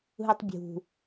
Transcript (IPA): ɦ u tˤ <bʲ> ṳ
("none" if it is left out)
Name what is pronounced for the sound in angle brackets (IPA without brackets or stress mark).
bʲ